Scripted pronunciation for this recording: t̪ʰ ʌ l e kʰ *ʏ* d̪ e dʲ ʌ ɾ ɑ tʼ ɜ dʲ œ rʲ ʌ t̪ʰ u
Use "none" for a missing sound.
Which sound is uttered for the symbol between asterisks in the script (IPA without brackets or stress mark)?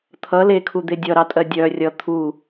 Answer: u